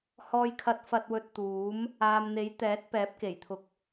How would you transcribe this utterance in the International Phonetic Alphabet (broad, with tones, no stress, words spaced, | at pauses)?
hɔː˧jkʰɐ˧t̚fɐ˧t̚wɵ˧t̚ t̪uː˨˥m | aː˨mn̪e˨˥jt̪ɛː˨˥t̚ pɛː˨˥p̚ke˨˩jt̪ʰʊ˨˥k̚